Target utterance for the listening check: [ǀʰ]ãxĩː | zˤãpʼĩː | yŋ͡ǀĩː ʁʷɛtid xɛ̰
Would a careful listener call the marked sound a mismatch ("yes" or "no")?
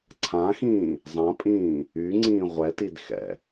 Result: no